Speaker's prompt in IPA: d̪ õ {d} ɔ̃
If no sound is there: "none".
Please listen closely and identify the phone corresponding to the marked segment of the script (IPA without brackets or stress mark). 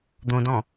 d